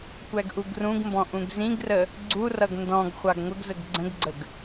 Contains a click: yes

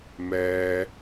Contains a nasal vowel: no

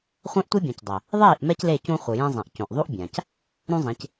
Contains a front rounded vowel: no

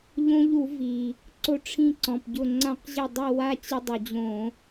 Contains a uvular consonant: yes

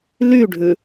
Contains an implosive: no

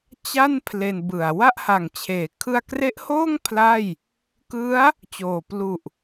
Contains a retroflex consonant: no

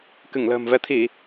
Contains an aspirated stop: yes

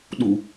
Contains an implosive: yes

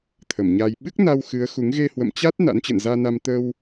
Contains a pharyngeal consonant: no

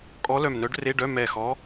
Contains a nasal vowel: no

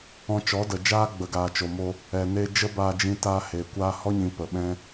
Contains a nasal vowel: yes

